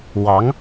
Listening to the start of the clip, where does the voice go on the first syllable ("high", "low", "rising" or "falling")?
rising